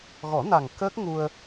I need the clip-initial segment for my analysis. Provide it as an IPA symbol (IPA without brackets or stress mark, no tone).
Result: ɣ